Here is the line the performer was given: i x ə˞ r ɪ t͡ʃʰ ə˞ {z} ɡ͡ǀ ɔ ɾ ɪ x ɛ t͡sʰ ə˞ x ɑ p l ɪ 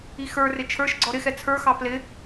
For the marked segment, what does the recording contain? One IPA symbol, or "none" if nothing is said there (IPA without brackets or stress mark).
ʃ